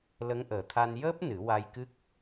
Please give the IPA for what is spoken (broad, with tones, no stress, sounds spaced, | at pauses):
l ə˧˥ ŋ ʔ əː˨˩ t̪ʰ a˧ n j əː˦˥ p̚ n ɨ˨˩˦ w a˧ j k ɨ˦˥ k̚